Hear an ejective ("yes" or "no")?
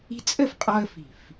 yes